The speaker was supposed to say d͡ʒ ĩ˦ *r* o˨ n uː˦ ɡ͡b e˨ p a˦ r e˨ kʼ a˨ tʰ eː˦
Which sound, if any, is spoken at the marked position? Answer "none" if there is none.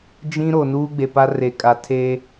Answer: ɾ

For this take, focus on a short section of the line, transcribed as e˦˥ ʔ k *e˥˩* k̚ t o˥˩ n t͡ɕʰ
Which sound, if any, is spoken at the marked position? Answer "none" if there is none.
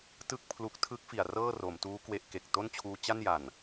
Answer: e˨˩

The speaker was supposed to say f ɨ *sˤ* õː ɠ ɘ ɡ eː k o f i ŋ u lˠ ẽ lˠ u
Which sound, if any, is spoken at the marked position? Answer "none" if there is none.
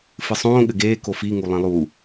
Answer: sˤ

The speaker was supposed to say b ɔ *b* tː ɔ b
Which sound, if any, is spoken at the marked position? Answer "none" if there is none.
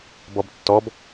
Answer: b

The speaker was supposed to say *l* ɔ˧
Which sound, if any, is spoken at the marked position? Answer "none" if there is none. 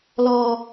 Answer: l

